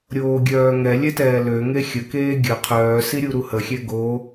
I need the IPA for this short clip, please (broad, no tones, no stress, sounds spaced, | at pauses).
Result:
ɾʲ oː ɡʲ œː ŋ ɛ lʲ ɛ t ɛː l ø ŋ e xʲ ə k eː ɡʲ ə qʰ œː s i ɾʲ u ɾ u h ə xʲ ɛ ɡ o